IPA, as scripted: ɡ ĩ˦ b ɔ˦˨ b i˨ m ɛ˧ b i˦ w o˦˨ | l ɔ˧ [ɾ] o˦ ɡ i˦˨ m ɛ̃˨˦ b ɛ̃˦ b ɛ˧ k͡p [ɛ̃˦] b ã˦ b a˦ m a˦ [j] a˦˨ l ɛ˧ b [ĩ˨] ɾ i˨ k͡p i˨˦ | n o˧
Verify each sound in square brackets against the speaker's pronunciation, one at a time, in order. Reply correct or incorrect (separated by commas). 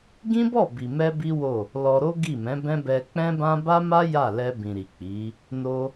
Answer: correct, correct, correct, correct